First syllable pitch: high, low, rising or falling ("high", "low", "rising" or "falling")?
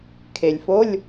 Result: low